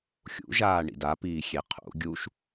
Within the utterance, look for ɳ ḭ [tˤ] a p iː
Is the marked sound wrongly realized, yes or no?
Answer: yes